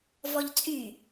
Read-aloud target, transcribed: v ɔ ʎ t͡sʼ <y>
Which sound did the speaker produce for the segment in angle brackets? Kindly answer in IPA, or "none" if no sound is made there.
y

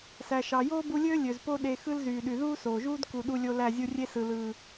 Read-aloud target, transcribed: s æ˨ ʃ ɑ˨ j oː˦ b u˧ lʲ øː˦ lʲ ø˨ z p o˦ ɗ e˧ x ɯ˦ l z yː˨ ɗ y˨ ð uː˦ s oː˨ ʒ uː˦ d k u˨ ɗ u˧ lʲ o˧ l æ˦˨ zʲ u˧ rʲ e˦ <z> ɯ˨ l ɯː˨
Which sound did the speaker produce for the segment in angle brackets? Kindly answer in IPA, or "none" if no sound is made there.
s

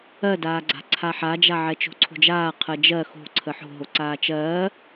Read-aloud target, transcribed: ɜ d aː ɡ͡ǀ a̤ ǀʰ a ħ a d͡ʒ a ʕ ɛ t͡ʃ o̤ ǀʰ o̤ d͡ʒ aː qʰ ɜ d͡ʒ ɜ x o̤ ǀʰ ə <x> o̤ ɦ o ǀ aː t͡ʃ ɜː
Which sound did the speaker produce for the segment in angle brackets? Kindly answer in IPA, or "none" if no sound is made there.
ħ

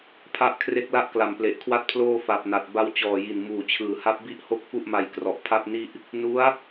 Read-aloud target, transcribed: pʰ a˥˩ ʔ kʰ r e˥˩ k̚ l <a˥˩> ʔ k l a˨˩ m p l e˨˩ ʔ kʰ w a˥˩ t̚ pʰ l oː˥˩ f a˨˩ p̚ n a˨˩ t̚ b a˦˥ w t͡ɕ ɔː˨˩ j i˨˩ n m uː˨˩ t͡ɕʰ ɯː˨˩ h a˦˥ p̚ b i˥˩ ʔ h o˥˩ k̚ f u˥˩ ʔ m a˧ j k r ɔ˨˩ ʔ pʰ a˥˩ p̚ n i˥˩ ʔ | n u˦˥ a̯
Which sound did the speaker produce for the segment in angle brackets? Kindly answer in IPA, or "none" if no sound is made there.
a˥˩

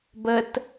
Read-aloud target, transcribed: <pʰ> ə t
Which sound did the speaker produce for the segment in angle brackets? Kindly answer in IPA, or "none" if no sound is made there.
b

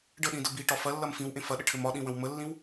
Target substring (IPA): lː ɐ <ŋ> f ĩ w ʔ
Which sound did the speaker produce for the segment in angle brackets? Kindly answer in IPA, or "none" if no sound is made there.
m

